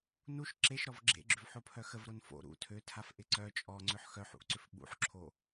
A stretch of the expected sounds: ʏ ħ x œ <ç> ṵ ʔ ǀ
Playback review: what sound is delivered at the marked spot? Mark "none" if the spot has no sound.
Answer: ħ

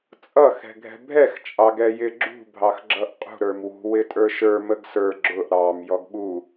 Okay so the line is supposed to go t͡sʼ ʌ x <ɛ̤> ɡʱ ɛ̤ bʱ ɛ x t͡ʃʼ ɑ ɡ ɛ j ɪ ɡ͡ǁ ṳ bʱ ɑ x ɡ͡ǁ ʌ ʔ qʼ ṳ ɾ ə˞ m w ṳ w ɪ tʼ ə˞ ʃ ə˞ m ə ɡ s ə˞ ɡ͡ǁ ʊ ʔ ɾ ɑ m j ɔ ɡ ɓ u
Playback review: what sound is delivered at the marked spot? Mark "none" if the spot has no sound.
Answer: ɛ̤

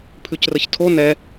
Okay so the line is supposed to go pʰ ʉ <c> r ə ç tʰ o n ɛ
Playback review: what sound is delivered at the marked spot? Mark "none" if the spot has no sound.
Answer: c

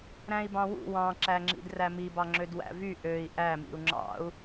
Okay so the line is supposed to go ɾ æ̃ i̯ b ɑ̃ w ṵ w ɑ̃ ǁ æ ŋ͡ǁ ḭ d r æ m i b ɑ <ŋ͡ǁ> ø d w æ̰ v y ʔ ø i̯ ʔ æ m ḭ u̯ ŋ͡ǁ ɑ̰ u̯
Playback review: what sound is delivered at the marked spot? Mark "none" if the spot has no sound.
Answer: ŋ͡ǁ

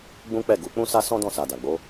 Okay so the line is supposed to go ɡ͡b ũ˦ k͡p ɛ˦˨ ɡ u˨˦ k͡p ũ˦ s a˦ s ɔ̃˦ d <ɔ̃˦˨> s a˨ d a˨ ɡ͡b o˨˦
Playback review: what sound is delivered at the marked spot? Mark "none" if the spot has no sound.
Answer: ɔ̃˦˨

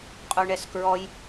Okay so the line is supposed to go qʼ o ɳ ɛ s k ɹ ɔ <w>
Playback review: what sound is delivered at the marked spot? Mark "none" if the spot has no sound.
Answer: j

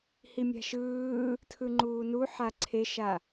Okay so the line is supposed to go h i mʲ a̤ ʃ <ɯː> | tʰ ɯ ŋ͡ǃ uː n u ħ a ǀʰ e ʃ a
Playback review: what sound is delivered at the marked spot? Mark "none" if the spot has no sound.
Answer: ɯː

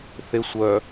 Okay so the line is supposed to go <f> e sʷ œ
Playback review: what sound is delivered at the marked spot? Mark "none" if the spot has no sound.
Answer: θ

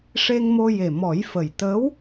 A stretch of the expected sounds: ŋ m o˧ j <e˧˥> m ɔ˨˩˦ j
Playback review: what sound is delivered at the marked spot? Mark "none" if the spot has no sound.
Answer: e˨˩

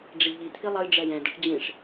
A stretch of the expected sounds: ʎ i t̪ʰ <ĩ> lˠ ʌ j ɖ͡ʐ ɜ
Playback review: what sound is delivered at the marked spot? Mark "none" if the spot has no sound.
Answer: i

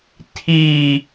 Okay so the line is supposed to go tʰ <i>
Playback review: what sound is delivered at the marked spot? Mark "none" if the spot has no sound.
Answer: i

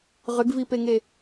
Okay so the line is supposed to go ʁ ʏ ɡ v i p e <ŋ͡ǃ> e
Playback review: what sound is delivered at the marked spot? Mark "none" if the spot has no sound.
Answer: ŋ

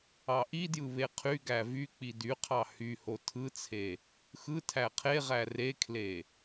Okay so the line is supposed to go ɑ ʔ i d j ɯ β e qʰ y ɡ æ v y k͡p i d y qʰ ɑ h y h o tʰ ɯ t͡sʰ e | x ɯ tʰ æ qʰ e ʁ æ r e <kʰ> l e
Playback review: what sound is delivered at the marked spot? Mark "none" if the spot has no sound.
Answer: kʰ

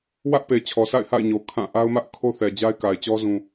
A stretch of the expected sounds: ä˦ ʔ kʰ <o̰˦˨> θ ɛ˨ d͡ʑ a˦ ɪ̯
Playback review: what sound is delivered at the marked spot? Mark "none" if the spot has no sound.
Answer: o˦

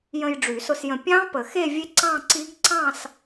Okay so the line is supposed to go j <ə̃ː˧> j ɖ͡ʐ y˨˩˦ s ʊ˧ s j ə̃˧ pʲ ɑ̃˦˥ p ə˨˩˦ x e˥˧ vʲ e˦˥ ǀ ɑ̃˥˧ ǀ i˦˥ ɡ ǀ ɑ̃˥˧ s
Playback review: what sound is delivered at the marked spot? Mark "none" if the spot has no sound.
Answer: ə̃˧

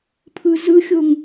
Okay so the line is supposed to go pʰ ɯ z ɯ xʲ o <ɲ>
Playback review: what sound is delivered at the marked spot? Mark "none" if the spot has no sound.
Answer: ŋ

